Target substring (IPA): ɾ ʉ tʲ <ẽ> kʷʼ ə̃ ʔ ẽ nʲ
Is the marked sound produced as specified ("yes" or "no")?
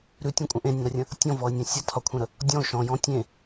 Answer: yes